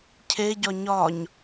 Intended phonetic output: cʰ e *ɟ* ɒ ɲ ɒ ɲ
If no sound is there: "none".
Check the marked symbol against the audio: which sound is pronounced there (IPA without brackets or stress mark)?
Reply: ɟ